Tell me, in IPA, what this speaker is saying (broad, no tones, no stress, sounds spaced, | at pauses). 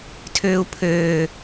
tʰ øː u̯ pʰ øː